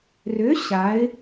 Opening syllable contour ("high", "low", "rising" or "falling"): rising